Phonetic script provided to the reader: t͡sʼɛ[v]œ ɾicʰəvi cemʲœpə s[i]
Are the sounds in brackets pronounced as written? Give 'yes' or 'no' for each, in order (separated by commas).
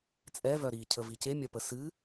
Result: yes, no